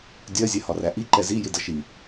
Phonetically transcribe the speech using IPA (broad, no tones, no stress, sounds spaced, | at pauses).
dʲ ɜ zʲ ɛ h ɒ r æ ʔ i ǃ ɛ z i j ɪ d ʌ ʃ i